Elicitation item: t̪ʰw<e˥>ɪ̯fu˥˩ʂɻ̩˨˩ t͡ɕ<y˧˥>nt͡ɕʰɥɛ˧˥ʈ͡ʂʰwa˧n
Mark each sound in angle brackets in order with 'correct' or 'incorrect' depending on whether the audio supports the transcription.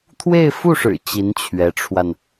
incorrect: e˥˧, incorrect: i˧˥

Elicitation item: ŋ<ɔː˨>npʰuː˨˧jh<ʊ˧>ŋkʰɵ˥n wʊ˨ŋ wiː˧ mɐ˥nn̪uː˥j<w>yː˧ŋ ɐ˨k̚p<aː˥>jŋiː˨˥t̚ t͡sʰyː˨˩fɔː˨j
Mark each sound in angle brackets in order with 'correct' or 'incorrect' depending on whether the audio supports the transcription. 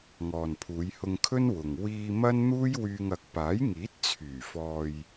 correct, correct, correct, incorrect: aː˨˥

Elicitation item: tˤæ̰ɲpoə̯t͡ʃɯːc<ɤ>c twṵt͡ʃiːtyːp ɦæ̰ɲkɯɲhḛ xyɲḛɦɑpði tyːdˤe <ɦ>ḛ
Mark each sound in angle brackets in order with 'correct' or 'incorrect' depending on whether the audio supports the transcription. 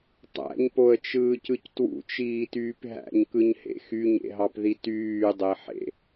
incorrect: ɯ, incorrect: ħ

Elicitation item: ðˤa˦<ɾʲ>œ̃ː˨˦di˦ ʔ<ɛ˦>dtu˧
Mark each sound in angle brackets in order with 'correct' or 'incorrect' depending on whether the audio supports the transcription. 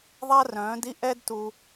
incorrect: r, correct

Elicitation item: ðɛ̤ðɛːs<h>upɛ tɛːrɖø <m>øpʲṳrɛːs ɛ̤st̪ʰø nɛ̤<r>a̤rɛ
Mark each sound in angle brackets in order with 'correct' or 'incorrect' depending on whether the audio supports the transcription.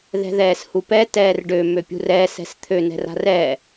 correct, correct, correct

